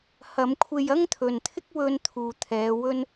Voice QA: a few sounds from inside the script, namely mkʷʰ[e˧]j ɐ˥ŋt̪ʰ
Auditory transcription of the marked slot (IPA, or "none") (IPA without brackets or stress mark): e˧